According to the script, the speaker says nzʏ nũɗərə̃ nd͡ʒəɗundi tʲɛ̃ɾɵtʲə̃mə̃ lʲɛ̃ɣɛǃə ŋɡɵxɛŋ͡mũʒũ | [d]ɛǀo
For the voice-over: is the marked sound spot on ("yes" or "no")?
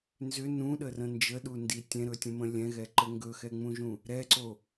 no